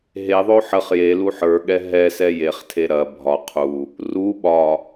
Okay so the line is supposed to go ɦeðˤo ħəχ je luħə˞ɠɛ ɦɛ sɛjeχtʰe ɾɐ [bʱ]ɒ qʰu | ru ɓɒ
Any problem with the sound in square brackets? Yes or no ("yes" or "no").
no